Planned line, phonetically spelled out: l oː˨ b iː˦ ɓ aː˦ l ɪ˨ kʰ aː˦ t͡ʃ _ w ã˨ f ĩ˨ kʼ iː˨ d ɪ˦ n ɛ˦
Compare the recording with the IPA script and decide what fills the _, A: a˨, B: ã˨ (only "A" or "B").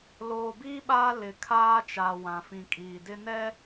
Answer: A